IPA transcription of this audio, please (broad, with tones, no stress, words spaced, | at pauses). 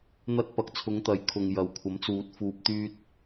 n̪ɐ˧t̚pɐ˨k̚t͡sʰʊ˨˧ŋ t̪ɐ˨jkʰʊ˨ŋ jɐ˨wkʷʰɐ˨˥mt͡suː˨t̚ fuː˨p̚t̪yː˧t̚